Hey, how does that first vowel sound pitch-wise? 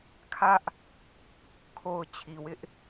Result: high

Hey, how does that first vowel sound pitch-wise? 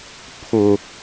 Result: low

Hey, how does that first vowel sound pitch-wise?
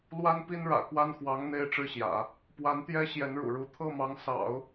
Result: high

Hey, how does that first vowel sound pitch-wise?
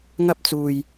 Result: high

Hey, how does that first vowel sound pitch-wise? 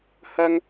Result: high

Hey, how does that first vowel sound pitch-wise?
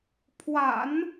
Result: low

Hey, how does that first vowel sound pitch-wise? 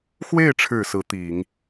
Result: falling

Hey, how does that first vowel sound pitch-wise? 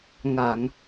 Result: low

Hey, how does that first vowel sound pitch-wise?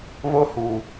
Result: high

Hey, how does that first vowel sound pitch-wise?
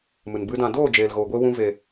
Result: low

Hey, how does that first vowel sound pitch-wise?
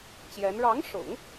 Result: rising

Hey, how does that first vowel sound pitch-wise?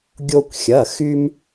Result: high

